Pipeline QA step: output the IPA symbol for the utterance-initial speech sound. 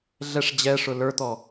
ɮ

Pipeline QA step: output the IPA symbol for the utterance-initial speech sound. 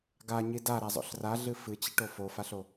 ɡ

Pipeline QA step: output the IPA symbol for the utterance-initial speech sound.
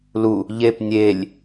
l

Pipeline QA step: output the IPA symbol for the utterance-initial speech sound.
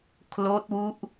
kʰ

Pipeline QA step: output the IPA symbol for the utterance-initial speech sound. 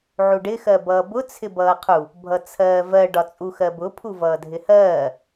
ʕ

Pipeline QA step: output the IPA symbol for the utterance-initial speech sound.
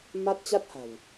m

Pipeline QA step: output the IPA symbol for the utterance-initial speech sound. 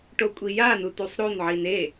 ʈ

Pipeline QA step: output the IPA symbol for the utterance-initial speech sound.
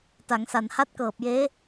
t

